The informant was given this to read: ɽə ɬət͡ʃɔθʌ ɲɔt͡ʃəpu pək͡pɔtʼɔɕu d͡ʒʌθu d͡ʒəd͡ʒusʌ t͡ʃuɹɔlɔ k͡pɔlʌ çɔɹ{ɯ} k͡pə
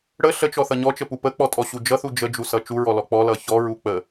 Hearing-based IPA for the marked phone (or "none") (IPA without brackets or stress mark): u